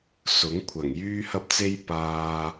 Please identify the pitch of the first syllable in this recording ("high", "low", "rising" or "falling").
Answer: rising